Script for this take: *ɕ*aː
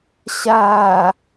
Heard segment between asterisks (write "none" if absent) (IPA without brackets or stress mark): ɕ